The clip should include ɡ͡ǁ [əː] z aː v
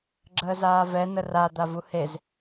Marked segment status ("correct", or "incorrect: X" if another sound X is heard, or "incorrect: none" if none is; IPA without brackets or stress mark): correct